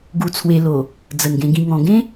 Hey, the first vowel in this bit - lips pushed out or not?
yes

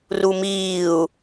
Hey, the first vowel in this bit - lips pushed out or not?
yes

